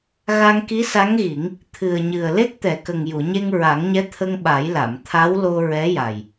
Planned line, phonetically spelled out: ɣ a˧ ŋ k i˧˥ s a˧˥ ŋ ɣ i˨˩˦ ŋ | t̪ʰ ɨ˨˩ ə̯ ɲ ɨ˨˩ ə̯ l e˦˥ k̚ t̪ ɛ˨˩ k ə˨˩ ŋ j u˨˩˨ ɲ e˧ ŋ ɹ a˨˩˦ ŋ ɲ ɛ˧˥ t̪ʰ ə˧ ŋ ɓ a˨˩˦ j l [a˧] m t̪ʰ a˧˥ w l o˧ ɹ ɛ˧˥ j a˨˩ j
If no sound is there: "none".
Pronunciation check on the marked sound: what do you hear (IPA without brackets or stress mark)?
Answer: a˨˩˨